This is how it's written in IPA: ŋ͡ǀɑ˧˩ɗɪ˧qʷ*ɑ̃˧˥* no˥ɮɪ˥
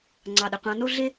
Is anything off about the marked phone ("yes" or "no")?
no